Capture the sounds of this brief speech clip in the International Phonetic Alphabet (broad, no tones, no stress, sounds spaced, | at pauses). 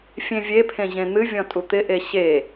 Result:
fʲ ẽ vʲ e pʰ ẽ ʑ ẽ n̪ ɨ vʲ ɔ̃ tʼ u t̪ ɪ ʔ e ɕ e